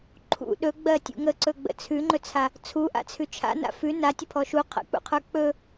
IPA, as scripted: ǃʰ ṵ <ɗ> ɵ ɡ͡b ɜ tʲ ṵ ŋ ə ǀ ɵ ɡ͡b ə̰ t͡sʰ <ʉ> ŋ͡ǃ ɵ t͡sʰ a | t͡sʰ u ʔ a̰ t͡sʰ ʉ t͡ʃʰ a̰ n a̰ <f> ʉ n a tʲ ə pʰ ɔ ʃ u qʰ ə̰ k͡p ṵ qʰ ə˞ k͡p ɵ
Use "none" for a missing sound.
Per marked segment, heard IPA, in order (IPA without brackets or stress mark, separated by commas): ɗ, ʉ, f